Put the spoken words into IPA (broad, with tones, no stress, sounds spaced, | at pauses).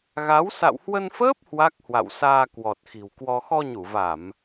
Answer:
ɣ a˨˦ w s a̰˧˨ w h w ə˧ n f əː˦˥ p̚ h w a˦˥ k̚ h w a̰˧˨ w s aː˧ k w ɔ˨˩ t̚ x i̤˨˩ w k w ɔ˧ x ɔ˧ ɲ u˧˩ v a˧˩˨ m